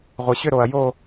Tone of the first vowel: low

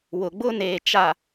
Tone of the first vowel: low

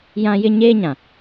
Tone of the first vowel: high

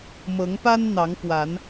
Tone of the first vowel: rising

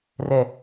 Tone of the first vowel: low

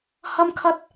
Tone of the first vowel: high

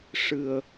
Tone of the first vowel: low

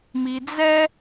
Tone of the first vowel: low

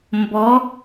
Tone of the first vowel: rising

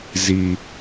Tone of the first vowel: low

